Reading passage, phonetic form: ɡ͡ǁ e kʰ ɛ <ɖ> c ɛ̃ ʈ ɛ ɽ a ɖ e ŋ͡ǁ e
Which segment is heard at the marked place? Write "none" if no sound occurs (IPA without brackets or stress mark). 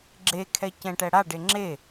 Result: none